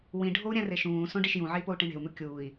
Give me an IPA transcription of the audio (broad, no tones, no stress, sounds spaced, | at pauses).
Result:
w ĩ ɖʱ o u̯ ɾʲ æ̃ r e ʃ ũː s õ ɖ i ʃ j ũ ʕ e i̯ p o u̯ ʈ ĩ ɳ e̤ u̯ n̪ u kʲ uː i̯